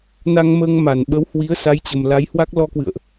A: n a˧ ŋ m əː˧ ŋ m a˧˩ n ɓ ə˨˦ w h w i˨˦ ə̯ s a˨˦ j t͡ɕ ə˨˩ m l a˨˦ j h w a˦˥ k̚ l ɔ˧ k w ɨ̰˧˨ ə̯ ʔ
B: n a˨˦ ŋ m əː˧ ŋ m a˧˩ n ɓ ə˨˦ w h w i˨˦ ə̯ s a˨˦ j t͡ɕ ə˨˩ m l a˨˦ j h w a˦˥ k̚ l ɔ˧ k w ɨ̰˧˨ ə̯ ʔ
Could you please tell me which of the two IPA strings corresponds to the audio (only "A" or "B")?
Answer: A